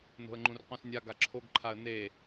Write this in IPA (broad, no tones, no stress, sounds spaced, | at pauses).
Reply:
n o̤ ə̯ ŋ͡ǃ ũ r q ũ s nʲ a ɡ a ǁʰ o ɡ ǃʰ a ə̯ n e